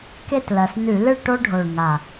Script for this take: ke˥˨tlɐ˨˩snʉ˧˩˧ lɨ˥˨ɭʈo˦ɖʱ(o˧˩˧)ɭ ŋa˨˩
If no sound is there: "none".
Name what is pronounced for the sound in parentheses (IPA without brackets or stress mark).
o˨˩